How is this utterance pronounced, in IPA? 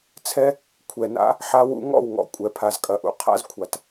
t͡sʰɛ˦ | kʷʰɛ˨na̰˦ | ħa˦wṵ˦ ŋɔ̰˦˨wŋɔ̰˨ kʷʼɛ˨pʰa˨zkʼɐ˨ʔṵ˧ qʰa̰˦zkʷʰa˨t

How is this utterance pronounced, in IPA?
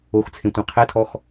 oxt͡sʰẽtʷẽ qʰɛtʰɔx

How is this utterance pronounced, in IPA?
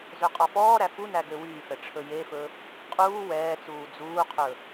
zøqʼɔfɔːɾæ funæ ɡøwyːfɛ ʈ͡ʂʰɵjefɵ | qʼuː wɛːt͡suː d͡zuːqʰɵ

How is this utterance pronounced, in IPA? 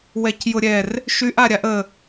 wɛcjʊɾʲɛr | ʃyʔ aɾʲaʔə

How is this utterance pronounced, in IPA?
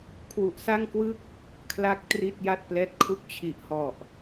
kʰwu˨˩ʔsa˥˩ŋkwɯ˥˩k̚ | kʰla˥˩k̚tri˥˩t̚ ja˥˩t̚plɛː˦˥t̚kʰu˥˩k̚ t͡ɕʰi˨˩ʔhɔ˨˩ʔ

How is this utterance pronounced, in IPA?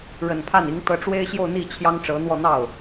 ɻə˨˩npʰa˥˩ni˧˥ŋ t̪ɤ˧˥ʈ͡ʂwe˥ɪ̯ɕjo˥˧ʊ̯n̪i˥˩ t͡ɕʰjɑ˥ŋʈ͡ʂɤ˧˥n̪wɔ˥˧ n̪ɑ˥˩ʊ̯

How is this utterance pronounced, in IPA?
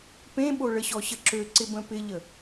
pẽɓoɭə ɕɔɕəǁøǀɪ bə̃pɪʎə

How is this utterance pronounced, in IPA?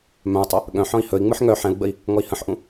mœ̃u̯tˤœ | ɠœ̃ħɔ̃i̯ hɵi̯ŋ͡mɯħ ŋœ ħɛ̃u̯ɡ͡bəi̯ | ŋɔi̯hə̃ħʔũ

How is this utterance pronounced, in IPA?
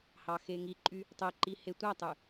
hɑxeŋiǃʼy | tˤeǃi hetʷætˤy

